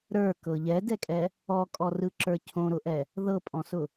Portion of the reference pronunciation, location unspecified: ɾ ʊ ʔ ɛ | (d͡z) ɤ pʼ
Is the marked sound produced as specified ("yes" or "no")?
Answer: no